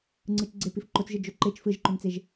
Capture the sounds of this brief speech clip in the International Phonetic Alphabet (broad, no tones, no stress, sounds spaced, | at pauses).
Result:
ŋ͡ǀ ɯ t͡ʃ ɡ͡ǀ e p i f ǃ o t͡s ʒ ɯ d͡ʒ o ǃ e t͡ʃ f ɯ ʒ ǃ o n t͡s e ʒ